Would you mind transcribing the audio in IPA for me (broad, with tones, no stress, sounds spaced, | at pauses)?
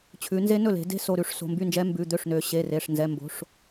t͡ɕʰ ʉ˩˧ n z e˦˥ n ɵ˥˩ l e̤˩˧ d e̤˦˥ s o˩˧˩ ɾ ʉ˩˧˩ ʂ s o̤˩˧˩ m b y˥˩ n d͡ʒ ɛ˦˥ m b ʉ˩˧˩ d̪ ø˥˩ ʂ n ø˩˧ ɕ e˩˧˩ r e˩˧˩ ʂ n z ɛ˩˧˩ m b o̤˩˧˩ ʂ